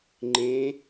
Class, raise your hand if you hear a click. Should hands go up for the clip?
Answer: yes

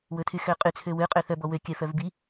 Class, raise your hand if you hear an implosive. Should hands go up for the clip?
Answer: no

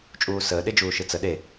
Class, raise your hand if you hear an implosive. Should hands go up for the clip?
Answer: yes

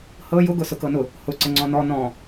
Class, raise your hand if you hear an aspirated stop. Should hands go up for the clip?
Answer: no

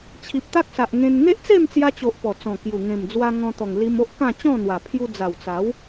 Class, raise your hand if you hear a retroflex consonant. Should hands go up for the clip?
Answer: no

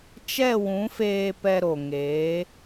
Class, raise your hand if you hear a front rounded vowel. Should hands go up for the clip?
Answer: no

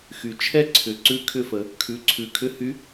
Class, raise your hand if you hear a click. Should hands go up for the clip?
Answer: yes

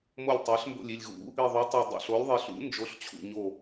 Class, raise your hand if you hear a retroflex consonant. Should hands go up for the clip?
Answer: no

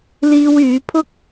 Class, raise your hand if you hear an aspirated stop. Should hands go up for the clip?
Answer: yes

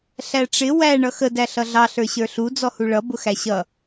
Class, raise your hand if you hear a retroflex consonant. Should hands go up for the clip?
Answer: yes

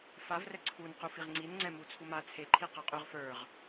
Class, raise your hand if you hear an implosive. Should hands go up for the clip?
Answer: no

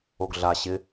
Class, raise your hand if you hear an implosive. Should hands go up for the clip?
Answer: no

